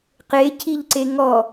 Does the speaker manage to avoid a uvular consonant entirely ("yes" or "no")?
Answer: no